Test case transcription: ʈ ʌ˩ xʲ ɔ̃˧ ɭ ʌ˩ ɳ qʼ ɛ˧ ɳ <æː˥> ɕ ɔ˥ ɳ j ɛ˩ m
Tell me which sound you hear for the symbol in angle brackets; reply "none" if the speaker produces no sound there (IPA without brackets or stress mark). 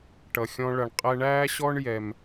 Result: æː˥